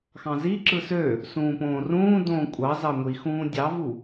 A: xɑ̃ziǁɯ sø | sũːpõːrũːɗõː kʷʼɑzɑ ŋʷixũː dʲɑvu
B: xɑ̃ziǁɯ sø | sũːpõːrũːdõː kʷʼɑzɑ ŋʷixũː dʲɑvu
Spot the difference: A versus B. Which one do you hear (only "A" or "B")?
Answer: B